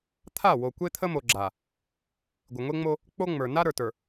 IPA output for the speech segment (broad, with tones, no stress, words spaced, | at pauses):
t̪ʰa˦˨wo˨ kʷe˦t̪ʰə˦mo˨ ɡ͡ǁa˨ | ɡʷɪ˨ŋʷe˦ŋ͡mo˦ | k͡po˦ŋ͡mə˞˨ na˦ɾə˞˨tə˞˨